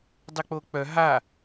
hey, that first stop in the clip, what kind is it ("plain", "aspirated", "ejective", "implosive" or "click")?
plain